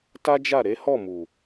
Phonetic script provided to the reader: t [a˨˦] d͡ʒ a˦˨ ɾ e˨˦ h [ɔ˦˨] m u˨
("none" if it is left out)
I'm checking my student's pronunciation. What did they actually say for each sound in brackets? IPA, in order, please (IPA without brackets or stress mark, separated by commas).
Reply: a˦, ɔ˦˨